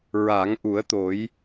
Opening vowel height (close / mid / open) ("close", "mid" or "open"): open